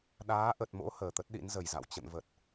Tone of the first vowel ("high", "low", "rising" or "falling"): rising